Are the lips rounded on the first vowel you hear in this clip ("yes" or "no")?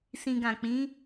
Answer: no